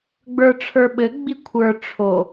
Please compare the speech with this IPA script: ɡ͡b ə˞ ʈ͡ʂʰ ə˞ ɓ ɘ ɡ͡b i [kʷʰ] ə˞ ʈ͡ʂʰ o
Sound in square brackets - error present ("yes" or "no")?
no